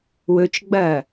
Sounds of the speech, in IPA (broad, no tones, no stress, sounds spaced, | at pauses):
w ɵ t͡ʃ ɡ͡b ɐː